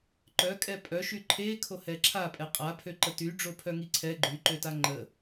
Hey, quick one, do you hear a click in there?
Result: yes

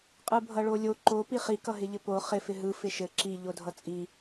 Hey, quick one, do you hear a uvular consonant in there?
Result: yes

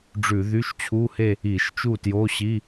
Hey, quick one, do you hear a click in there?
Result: no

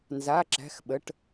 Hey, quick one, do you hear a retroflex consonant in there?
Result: yes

